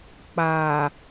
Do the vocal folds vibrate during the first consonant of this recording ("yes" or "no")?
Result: no